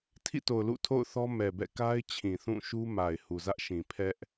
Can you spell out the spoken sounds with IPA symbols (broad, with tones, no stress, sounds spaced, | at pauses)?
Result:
tʰ ḭ˦˨ t o˨ ʊ̯ l ṵ˦˨ tʰ o̰˦˨ ʊ̯ θ ɔ˦ m ɛ˨ b ɛ̰˦˨ k a˦ ɪ̯ t͡ɕʰ ĩ˨ θ ũ˦˨ ʃ u˦ m a˨ ɪ̯ h u˨ z ä˦ ʔ ʃ ĩ˨ pʰ ɛ˦ ʔ